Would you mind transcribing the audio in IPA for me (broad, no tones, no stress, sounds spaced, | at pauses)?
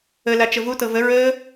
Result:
ə l a t͡ʃ ə v u t ɤ v ə ɹ əː